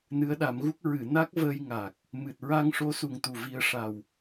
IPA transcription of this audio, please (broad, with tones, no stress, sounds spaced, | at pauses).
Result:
n ɨ˧˥ ə̯ ɗ a˨˩˦ m ɣ u˦˥ k̚ ɹ ɨ˨˩˨ n a˦˥ k̚ v əː˧ j ŋ a˨˩ k̚ | m ɨ˨˩ t̚ ɹ a˧ ŋ ʂ o˧˥ s u˨˩ ŋ t̪ u˨˩ v i˧ ə̯ ʂ a˨˩ w